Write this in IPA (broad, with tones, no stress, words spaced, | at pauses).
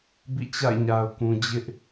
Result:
bḭ˦˨t͡ɕa̰˦˨ɪ̯ɲa˨ʊ̯kũ˨ d͡ʑɪ˦ʔ